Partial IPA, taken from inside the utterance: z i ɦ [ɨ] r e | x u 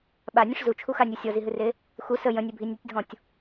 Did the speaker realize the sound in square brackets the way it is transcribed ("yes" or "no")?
yes